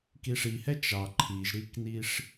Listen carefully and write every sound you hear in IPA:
k i ʂ i h ɛ t͡ʃ ɑ ǃʰ i ʒ ɾ i k n i ʂ

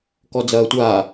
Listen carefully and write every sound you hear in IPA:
k ɔ d͡z ɐː tʷ aː

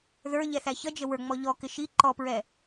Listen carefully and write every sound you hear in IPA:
ð ə˞ ʎ ɛ θ æ ç ʌ d͡ʒ ə w ə˞ ŋ͡m ɔ ʎ ɔ k ɪ ʃ i ǃ ɔ p ɹ ɛ

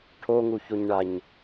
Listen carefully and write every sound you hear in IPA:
ʈʰ o ŋ u ç o ɲ ɳ a ɲ

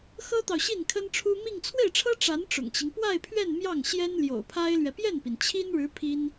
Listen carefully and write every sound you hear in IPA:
x ɤ˥ t̪ ɑ˨ ʊ̯ ɕ i˥˩ n kʰ ə˥ n ʈ͡ʂʰ u˥ m i˥˧ ŋ t͡sʰ w e˥˩ ɪ̯ ʈ͡ʂʰ ɤ˥ ʈ͡ʂ a˧˥ n ʈ͡ʂ ʊ̰˨˩ ŋ t͡ɕ i˦ ŋ p w a˥˧ ɪ̯ pʰ ɥ ɛ˥˧ n m j ɑ˥˩ ŋ ɕ j ɛ˥ n l j o̰˨˩ ʊ̯ pʰ a˥ ɪ̯ l ɥ ɛ˨ p j ɛ˥˩ n p i˩ n t͡ɕʰ i˥ n ɻ ɻ̩˧˥ pʰ i˥ n

